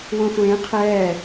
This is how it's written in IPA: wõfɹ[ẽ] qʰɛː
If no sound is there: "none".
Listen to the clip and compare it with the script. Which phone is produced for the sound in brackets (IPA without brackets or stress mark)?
ẽ